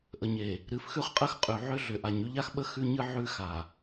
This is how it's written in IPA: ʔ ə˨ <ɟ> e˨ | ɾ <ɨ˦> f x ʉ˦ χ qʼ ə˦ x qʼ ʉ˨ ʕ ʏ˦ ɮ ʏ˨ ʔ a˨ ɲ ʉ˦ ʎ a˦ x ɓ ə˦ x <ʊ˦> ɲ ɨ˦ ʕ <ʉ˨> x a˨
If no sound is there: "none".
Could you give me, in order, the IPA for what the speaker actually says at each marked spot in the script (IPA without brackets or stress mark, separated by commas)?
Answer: ɲ, ɨ˨, ʉ˦, ʉ˦